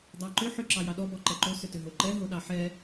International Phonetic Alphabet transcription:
dˤ ɑ ǃ ʏ ħ ʏ ǁ ɑ j ɑ ɗ ɔ b ɔ ǃ ɛ ǃ o s ʏ t ʏ ɦ o ǃ ɛ ɦ o ɗ ɑ ħ ɛ

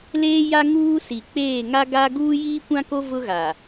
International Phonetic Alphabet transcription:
l eː˦ j a˦ ŋ uː˦ s i˨ k͡p eː˦˨ ŋ a˦ ɡ a˦ ɡ uː˦ j iː˦ kʷ ã˦ k o˦ v ʊ˦ ɣ a˨

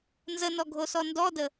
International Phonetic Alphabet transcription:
n z ə n ɔ ɡʱ o s ɔ n d ɔ d ə

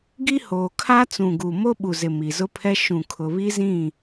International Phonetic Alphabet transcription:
ɡ i˦ h oː˨ kʰ a˦ t͡s ũ˨ ɡ u˨ m o˦ ɓ u˨ z ɪ˨ m i˨ z ʊ˦ pʰ ɛ˦ ʃ ũ˨ kʰ ʊ˨ β i˦ z ĩ˦˨

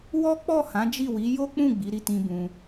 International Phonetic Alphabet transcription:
w ɔ˦ k͡p ɔ˦˨ h ã˨˦ d͡ʒ i˦˨ w i˨˦ j o˦ k͡p ũ˦˨ ɡ͡b i˨˦ ɾ i˦˨ t ĩ˧ b ũ˧

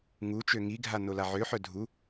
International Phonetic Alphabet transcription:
ŋ u t͡ʃ ø ŋ i ɡʱ a n o l a ʕ ø ħ œ dʱ u

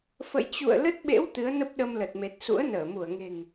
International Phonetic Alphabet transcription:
f ə̰˧˨ j t͡ɕ ṵ˧˨ ə̯ l ə˦˥ t̚ ɓ ḛ˧˥ w t̪ ɨ˨˦ ə̯ n ə˦˥ p̚ ɗ ə˧ m l ə˨˩ t̚ m e˨˩ t̚ s ṵ˧˥ ə̯ n əː˧˩ m u˧˩ ə̯ ŋ e̤˨˩ ŋ

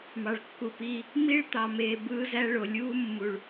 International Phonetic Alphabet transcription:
m ɑ˨ ɭ kː u˨ p iː˧ | m i˦ ɭ t̪ ɑ˨ m eː˨ b ɯː˦ z æ˦ ɭ o˨ lʲ uː˦ mː u˨ ɭ

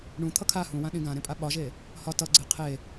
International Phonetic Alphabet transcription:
ɳ ũ t̪ʰ ʌ kʰ a h ũ w ã ɗ ĩ ɡ ã ɾ ẽ pʼ a ɓ ɒ ʒ e | h ɒ t ʌ ɡ͡ǀ e qʰ e

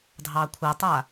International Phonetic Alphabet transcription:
dʱ ɑ kʷʰ ɐ tˤ a

